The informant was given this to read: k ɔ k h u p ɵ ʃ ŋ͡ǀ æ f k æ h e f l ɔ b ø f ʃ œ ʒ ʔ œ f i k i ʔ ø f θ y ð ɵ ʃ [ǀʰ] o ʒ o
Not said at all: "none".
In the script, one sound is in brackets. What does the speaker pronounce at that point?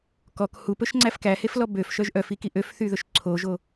ǀʰ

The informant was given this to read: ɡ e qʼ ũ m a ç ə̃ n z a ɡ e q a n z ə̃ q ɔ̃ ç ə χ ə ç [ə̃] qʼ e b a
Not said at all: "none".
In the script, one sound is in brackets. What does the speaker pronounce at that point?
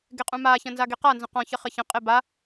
ə̃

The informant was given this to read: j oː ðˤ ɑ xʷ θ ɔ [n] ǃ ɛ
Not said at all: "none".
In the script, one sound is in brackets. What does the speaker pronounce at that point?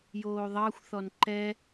n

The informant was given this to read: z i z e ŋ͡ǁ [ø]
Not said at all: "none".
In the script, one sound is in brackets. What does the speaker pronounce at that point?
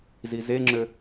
ø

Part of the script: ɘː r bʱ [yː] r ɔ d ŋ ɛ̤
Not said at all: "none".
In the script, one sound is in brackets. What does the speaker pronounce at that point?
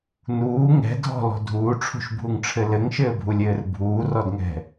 uː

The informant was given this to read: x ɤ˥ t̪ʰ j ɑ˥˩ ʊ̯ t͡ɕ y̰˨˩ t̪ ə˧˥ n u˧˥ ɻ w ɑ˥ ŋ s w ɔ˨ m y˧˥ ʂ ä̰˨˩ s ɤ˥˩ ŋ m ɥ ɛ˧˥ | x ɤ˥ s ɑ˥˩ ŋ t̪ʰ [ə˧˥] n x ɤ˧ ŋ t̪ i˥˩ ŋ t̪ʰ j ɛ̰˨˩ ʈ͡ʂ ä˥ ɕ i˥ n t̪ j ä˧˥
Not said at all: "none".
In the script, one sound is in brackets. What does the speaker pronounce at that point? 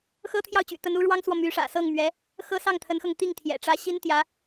ə˧˥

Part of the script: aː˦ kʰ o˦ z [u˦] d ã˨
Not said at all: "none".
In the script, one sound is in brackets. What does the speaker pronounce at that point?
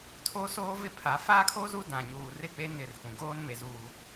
u˦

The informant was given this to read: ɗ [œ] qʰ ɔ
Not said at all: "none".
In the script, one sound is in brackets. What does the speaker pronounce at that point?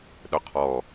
œ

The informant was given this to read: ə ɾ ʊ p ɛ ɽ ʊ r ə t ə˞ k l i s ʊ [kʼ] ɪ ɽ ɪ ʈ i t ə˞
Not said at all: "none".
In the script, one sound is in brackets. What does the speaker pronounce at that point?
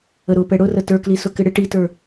k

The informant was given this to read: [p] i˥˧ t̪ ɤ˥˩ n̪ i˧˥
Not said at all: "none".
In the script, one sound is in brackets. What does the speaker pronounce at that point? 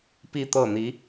p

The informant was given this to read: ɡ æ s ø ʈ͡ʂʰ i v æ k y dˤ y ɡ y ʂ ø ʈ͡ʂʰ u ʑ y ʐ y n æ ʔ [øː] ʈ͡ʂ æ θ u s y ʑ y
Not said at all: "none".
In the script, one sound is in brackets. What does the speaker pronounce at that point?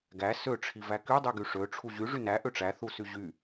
ø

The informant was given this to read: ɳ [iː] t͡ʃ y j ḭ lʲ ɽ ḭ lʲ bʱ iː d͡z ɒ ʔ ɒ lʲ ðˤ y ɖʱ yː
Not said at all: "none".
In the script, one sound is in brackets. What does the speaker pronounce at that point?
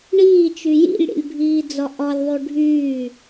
iː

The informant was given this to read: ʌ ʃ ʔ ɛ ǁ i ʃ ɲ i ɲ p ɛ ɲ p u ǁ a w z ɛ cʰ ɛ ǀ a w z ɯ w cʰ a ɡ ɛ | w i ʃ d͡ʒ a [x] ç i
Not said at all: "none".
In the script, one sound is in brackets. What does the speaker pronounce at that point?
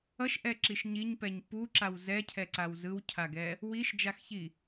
x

